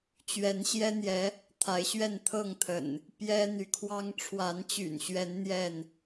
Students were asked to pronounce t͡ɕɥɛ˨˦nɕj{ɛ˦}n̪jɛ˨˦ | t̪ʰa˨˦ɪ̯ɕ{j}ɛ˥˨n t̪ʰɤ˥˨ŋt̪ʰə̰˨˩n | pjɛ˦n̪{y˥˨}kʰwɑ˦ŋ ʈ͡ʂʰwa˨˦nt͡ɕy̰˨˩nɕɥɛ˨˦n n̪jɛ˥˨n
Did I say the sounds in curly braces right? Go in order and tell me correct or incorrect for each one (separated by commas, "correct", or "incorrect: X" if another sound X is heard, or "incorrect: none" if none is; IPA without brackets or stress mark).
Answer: correct, incorrect: ɥ, incorrect: y˨˦